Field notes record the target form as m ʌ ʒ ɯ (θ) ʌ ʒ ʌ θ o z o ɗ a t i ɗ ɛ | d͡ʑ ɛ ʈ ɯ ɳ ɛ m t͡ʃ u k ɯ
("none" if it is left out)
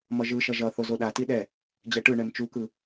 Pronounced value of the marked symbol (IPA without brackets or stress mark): ʃ